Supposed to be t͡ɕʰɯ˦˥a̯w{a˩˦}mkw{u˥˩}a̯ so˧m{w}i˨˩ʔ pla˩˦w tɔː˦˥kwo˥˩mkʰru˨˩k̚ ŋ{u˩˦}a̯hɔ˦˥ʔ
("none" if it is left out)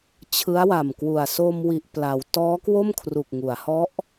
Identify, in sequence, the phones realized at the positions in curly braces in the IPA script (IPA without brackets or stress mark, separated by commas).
a˨˩, u˨˩, w, u˩˦